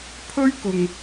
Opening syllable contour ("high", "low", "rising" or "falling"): high